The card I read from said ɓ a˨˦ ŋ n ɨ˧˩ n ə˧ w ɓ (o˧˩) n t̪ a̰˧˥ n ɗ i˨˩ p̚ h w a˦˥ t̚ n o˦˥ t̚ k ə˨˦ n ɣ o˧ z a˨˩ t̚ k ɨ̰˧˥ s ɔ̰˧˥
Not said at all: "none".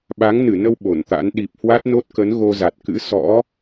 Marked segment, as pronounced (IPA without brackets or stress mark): o˧˩